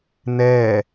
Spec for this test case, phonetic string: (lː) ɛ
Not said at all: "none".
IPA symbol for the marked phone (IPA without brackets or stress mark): n